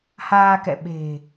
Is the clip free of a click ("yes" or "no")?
yes